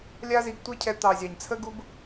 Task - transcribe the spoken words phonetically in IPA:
lʲ a˦ z i˧ ɡ tʷ ɛ˦ cʰ ɛ˧ t̪ ɑ˨ zʲ ɑ˨ ɲ t͡sʰ ə˦ ɡ u˦ b

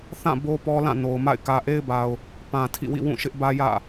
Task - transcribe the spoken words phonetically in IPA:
θ ã˦˨ b o˦ p ɔ˦ l ã˦˨ n o˨ ʊ̯ m a̰˦˨ ɪ̯ k ä˨ ʔ e˦ ɪ̯ b a˨ ʊ̯ | p ã˨ tʰ ḭ˦˨ w ḭ˦˨ w ũ˦˨ ʃ ɪ˦ ʔ b ä˦ j ä̰˦˨

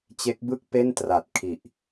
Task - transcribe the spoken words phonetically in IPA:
t͡ɕ e˦˥ k̚ b ɯ˥˩ k̚ p e˥˩ n t r a˨˩ t̚ kʰ i˨˩ ʔ

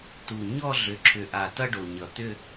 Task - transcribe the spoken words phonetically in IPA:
t u˨˩ ɲ ɔ˥˧ ɮ ʏ˨˩ ǁʰ ʏ˨˩ ʔ a˨˩ t ʌ˥˧ ɖ o˨˩ ɲ ʌ˨˩ t̪ ʏ˥˧

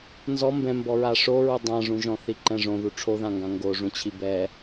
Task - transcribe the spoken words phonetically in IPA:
n z ɔ m b ɛ̃ m b ɔ ɹ a ʂ o ɹ u dˤ ã ʐ ũ ʒ ɔ̃ θ i ǃ ɛ̃ ʐ õ ð u ʈ͡ʂʰ o ð ã ŋ ɡ ã ŋ ɡ o ʐ ũ t͡ɕʰ i b ɛ

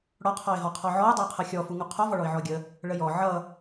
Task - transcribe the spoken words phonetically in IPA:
ɽ ɔ qʰ ɔ ɪ̯ ɦ ɔ qʰ ɔ ʕ ɔ ʊ̯ dˤ ʌ ʊ̯ qʰ ʌ xʲ ɔ f u ŋ u qʰ ɔ v ɔ ɭ ɔ ɪ̯ ʕ ɔ ə̯ ɡʲ ə | ɭ ə j ɔ ʕ ʌ

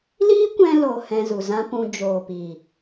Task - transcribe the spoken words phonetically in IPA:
l iː˦ kʷ ɛ̃˧ l o˨ h ɛ̃˧ z u˨ z ã˦ p ũ˧ d͡ʒ oː˨ p iː˨

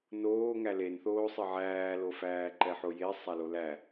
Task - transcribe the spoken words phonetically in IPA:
n oː ŋ æ l e n θ oː sˤ ɘ ʕ æː l o f æː ǃ ɛ ħ o j e sˤ a l o l æ

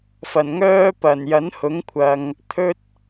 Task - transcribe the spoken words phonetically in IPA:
f ɐ˨˩ n ŋ œː˥ p ɐ˨˩ n j ɐ˨˥ n h ʊ˨˥ ŋ kʷʰ ɐ˨ ŋ | t̪ʰ ɵ˥ t̚

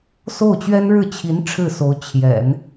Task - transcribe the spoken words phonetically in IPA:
s o˥˩ ʊ̯ t͡ɕ ɥ ɛ˥ n ɻ ɻ̩˥˩ t͡ɕʰ i˧˥ n ʈ͡ʂʰ ɻ̩˥˩ s o˧˥ ʊ̯ t͡ɕʰ j ɛ̰˨˩˦ n

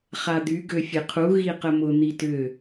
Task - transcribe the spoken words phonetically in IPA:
χ a d̪ y ɡ ø fʲ e qʰ u ɣ i q ə m ʊ n̪ i t ʏ

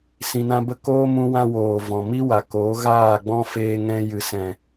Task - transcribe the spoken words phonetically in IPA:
s ĩ˧ n ã˦ b ə˦ k oː˦ m ũ˧ w ã˧ w oː˨ v ɔ̃˨ m i˦ w a˨ k oː˨˦ ɣ aː˦˨ ɡ͡b ɔ̃˦ f eː˧ ŋ ɛ̃˧ j ɨ˨ s ɛ̃˨

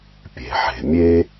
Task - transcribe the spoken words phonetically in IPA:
pʲ e̤˩ ħ e̤˩ mʲ e˦

